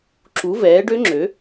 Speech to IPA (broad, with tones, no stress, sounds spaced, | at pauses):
ǁ u˨˥ v ɛː˨˥ ɖ ø˦˥ ŋ͡ǁ ø˨˥